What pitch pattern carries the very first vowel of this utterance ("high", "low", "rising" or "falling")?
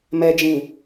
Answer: low